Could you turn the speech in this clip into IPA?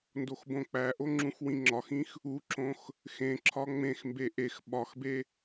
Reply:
n d o x b õ k͡p æ ʔ o ŋ͡ǁ ũ x w ĩ ŋ͡ǁ ɒ x ĩ x | u ǁ õ x | x ẽ ǁʰ ɒ ŋ͡m ẽ x m b e ʔ e x ɓ ɒ x b e

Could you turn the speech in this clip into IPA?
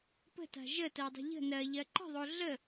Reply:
p ə̤ t a̤ ʒ ə t ɜ dˤ ə̤ ʎ ə̤ n ɜ ʎ ɜ ǃ ə̤ ðˤ o ɮ ə

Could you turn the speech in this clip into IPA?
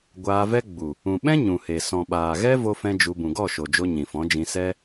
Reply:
ɡʷ aː˧ v ɛ˦ ɡ͡b u˨ | ũ˨ ɓ ɛ̃˦ ɲ ũ˨ h e˨ s ɔ̃˨ ɓ aː˨ ɣ ɛ˦ v o˦ f ɛ̃˦ d͡ʒ u˧ b ũ˨ ɡ ɔ˦˨ ʃ o˨ d͡ʒ o˧ ɲ ĩ˨ f ɔ̃˨˦ d͡ʒ ĩ˧ s ɛ˦

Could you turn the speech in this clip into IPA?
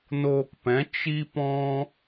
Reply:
n oː˧ k p ɛ̃˨˦ t͡ʃ i˦ p ɔ̃˦

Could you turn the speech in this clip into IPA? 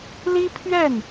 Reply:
l i˥ pʰ ɥ ɛ˥˩ n

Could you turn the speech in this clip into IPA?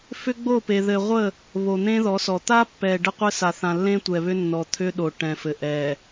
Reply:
f ʏ˦ ɡ͡b o˦˨ p e˨ ð ɘ˨ ʁʷ ə˦˨ | β o˨ n̪ ẽ˦ ð ɔ˨˦ s ɔ˨ t̪ a˦ pː ɛ˨ ɖ ə˦ qʷ ɘ˦ s a˨ θ ã˨ lː ẽ˦ tʷ ɛ˨ β ʏ˦ nː ɔ˨ t̪ʰ ʏ˦ ɗ o˨ ʈ ɛ̃˨ f ɘ˨ ʔ ɛ˨

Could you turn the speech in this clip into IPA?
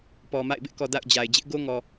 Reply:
p ɔ˨ m a̰˦˨ ɪ̯ b ɪ˦ ʔ k ɔ˨ d a̰˦˨ ʊ̯ d͡ʑ a˨ ɪ̯ d͡ʑ ɪ˦ ʔ ɡ o˦ ŋ ɔ˨

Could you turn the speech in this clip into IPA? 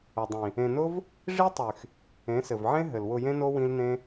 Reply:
ʊ˨ dˤ ĩ˨ | ẽ˨ n ʊ˦ v | ʐ i˦ tˤ y˨ x | ẽ˨˦ s ɘ˨ v ʕ ẽ˦ ɦ ɘ˨ l w ʊ˧ j ẽ˦ n o˦ w ĩ˦ l n ẽ˦

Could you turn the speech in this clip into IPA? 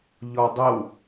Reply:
ʎ ɔ dˤ ɘ w

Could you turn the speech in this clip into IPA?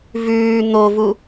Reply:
v ʉː n̪ o v u

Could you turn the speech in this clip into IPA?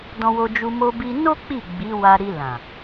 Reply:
d ɔ̃˧ w o˧ d͡ʒ u˧ m o˧ b i˧ n o˦ k͡p i˦˨ ɡ͡b i˨˦ w a˧ ɾ i˧ l ã˨

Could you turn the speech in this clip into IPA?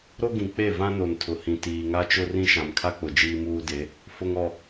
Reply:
ɾ o˦ ɡ ĩ˨ k͡p e˦˨ v ã˦ n o˨ n tʰ ʊ˨ h ĩ˨ t iː˨ ŋ a˦ t͡ʃ ʊ˦ r ĩ˦ ʃ ã˨ m kʰ a˦ k͡p ʊ˨ d͡ʒ iː˦ m uː˦ d e˨˦ | f ʊ˨ ŋ ɔ˨

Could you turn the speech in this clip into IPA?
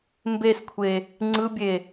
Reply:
m b e s kʷʰ e | ŋ͡ǀ ɯ bʲ e

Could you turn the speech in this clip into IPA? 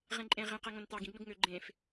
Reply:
ʁ ẽ ǃʼ ẽ ʁ ĩ q e ŋ õ n t̪ ɑ ɡ ĩ ɡ n o ɡ ŋ ø ɡ͡ǃ ẽ f

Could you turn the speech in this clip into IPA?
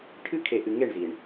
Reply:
ʈʰ ɨ˦ kʰ e˨ ʔ ɨ˨ ŋ e˦˨ ɳ z i˨ ɳ

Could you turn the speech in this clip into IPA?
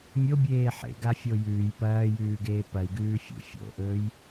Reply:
mʲ o bʲ eː ħ ḛ ɡ a fʲ o j ʉː j p ɐː j ʉː ɡ eː p ɐ i̯ ɡ ʉː fʲ ṵ fʲ o̰ ʔ ɵː j

